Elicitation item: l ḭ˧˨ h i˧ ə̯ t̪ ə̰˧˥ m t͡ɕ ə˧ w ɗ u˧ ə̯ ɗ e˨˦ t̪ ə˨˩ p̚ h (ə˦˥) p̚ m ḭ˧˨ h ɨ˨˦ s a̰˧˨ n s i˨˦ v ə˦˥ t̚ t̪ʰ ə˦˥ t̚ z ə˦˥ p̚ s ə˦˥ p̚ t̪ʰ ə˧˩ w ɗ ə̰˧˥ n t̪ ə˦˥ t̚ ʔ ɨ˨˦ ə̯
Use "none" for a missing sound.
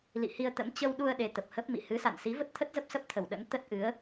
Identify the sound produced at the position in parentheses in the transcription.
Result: ə˦˥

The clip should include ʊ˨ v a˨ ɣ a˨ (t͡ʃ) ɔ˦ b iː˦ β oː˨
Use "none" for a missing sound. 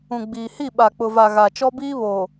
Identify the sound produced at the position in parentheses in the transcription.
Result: t͡ʃ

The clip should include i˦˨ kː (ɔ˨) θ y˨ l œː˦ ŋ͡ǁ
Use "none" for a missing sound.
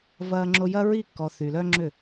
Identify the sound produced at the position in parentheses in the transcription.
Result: ɔ˨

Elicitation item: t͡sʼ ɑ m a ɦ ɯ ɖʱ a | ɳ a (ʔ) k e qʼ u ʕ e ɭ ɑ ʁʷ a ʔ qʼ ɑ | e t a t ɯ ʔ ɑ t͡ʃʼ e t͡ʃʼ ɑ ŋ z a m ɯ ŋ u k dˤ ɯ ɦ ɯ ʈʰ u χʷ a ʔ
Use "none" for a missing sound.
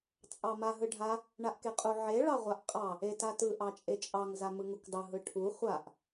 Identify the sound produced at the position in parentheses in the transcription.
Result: ʔ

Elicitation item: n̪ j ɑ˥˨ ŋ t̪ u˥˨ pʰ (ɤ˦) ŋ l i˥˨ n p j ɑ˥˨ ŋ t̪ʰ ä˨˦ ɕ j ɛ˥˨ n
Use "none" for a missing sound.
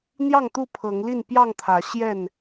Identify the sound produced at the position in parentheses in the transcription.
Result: ɤ˨˦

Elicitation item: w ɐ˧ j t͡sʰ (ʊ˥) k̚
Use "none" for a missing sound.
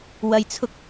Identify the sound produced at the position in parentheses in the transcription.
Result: ʊ˥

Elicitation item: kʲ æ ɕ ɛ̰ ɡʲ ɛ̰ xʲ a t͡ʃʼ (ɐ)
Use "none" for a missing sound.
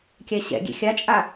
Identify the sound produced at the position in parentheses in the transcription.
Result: a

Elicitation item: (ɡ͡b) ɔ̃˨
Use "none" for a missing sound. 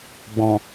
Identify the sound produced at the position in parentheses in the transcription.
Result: ɡ͡b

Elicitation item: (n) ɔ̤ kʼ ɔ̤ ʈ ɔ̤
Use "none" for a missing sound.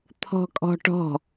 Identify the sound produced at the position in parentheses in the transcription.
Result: t̪ʰ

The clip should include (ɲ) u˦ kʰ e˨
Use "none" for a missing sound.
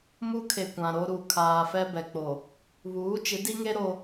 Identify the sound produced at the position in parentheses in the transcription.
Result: m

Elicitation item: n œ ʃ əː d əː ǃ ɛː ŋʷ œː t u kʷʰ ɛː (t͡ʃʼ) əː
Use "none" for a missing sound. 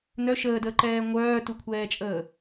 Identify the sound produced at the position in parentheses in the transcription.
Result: t͡ʃʼ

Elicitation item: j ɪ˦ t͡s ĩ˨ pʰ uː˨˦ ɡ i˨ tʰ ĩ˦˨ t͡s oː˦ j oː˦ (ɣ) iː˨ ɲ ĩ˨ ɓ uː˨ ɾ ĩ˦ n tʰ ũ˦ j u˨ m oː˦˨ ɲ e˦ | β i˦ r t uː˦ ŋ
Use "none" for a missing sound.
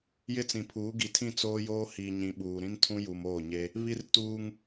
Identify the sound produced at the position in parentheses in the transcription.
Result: h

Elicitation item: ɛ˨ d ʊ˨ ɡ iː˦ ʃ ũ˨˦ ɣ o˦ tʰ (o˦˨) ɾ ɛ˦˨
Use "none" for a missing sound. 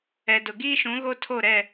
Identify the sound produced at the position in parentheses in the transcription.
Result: o˦˨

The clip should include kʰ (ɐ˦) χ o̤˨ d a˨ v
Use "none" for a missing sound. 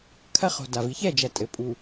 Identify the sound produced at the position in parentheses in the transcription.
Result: ɐ˦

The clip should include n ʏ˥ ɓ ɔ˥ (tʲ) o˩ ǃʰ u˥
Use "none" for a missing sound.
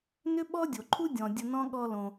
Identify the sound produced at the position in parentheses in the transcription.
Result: dʲ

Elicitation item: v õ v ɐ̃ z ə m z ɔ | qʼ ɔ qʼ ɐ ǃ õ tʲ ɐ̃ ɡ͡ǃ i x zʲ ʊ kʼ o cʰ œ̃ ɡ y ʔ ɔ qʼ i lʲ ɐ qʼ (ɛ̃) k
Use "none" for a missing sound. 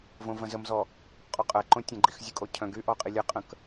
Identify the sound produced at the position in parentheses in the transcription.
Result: ə̃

